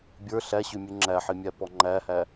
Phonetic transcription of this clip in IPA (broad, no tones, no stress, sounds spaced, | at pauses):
bʲ ə˞ ɬ æ ɕ ʉ mʲ ʉ ŋ͡ǁ æ ħ i mʲ æ p ɔ ŋ͡ǃ æ h æ